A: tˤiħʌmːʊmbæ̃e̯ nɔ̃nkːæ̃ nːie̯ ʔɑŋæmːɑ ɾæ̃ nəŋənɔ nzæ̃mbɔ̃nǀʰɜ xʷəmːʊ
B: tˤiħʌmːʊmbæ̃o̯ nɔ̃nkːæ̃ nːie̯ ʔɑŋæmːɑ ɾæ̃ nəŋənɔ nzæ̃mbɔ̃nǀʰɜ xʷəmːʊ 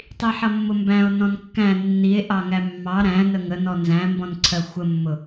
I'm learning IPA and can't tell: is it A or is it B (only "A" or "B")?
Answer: B